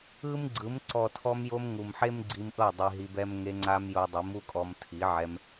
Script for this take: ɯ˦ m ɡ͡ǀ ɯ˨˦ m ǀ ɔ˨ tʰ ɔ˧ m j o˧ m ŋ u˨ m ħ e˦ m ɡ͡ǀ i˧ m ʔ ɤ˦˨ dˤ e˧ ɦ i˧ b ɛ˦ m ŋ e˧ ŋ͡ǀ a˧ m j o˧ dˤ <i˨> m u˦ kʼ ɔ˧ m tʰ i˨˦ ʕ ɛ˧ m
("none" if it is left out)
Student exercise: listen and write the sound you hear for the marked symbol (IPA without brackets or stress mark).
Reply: i˨˦